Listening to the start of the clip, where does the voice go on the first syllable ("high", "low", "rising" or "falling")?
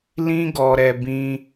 high